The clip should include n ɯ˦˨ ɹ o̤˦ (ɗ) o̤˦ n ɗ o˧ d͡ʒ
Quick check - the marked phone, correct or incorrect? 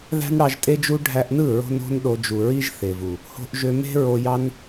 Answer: incorrect